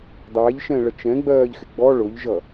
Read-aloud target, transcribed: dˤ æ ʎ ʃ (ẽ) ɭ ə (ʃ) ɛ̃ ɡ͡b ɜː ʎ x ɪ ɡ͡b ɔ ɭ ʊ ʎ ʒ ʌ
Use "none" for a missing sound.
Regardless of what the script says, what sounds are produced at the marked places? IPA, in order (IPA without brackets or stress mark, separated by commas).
ɛ̃, t͡ʃ